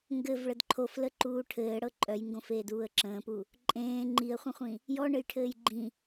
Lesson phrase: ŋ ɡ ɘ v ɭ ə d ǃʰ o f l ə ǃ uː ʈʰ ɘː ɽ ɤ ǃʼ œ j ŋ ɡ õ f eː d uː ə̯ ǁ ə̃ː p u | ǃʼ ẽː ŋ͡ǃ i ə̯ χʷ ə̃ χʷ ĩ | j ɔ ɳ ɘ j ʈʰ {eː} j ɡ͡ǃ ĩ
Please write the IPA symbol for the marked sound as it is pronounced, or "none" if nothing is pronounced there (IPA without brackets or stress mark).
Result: ɘː